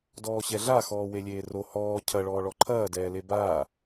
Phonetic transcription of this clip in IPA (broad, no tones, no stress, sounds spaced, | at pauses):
d ɔː ɕ ɛ ɮ a x ɔː w e lʲ eː r o h ɔː cʰ ɐ ɭ ɔː ɭ ɔ ǃʰ ɐː d ɛː l e b aː